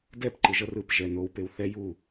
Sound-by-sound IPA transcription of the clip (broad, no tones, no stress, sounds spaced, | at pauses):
d ɛ p ǃ ɯ ʒ ʌ r ɯ p ʒ ɛ n o w p e w θ ɛ j u